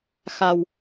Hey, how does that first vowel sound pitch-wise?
low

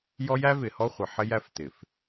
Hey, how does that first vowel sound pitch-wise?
high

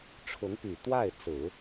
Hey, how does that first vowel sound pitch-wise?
rising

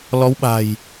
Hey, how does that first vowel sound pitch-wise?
rising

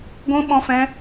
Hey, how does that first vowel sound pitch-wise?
high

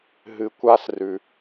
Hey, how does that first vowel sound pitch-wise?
low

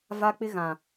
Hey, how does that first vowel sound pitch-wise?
high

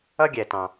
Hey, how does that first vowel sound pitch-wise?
high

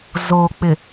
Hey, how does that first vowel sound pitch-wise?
low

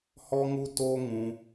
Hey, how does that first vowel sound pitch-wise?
high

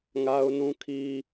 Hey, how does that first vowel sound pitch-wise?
high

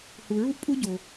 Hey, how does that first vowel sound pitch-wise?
low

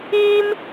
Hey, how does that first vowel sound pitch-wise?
high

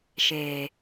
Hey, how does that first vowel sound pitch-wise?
low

